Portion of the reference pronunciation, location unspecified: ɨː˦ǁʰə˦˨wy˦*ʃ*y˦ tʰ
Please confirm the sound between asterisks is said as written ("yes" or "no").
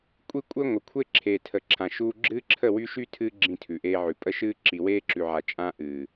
yes